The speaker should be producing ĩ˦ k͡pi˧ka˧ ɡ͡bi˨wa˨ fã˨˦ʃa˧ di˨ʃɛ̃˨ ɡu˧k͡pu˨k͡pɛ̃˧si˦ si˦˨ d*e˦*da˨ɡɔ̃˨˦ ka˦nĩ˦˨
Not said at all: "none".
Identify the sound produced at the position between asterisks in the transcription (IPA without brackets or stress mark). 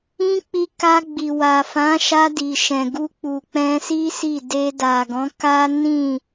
e˧